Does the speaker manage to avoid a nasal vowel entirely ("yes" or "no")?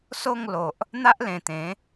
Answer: no